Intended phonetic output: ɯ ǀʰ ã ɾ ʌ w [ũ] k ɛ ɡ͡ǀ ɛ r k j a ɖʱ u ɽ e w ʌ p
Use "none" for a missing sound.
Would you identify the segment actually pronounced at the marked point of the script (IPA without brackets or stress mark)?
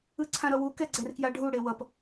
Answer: u